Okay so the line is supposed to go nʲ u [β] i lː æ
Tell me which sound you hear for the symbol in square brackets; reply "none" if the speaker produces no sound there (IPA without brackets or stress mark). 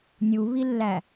β